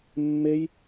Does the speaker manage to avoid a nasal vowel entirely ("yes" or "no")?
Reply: yes